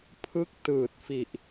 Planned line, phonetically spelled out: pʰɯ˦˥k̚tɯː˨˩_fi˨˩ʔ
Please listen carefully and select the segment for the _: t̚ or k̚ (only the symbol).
t̚